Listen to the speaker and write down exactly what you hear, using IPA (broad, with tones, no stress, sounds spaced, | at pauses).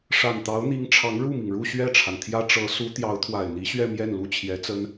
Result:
ʂ a˨˩ n t̪ ɑ˧˥ ʊ̯ n̪ i˧˥ ŋ ʈ͡ʂʰ ɑ˧˥ ŋ ɻ u˥˩ m i˩ ŋ ɻ u˥˧ ɕ ɥ ɛ˥˩ ʈ͡ʂʰ a˩ n t̪ʰ j ä˥ ʈ͡ʂ ɤ˧˥ s u˧˥ t̪ j ɑ˧˥ ʊ̯ t̪ʰ w a˨˩ ɪ̯ n̪ i˧˥ ɕ ɥ ɛ˥˧ m j ɛ˥˩ n l u˥ t͡ɕʰ j ɛ˧˥ t͡s ə˥ n